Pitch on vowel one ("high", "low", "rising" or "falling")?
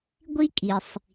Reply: high